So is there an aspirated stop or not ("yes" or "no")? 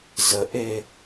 no